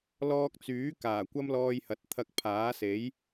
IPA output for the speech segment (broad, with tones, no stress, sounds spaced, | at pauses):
l ɔː˧ k̚ t͡s yː˨˥ k aː˨˩ kʷ ɐ˥ m l ɔː˧ j h ɐ˨ t̚ t̪ʰ ɐ˧ k̚ pʰ aː˨˥ s e˨˥ j